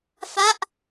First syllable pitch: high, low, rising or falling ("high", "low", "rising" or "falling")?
falling